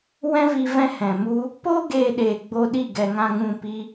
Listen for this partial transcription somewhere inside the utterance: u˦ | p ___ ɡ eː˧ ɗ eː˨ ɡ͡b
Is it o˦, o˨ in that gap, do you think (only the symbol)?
o˦